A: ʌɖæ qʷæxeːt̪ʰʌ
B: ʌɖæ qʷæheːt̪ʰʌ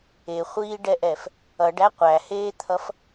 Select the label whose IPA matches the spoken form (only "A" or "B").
B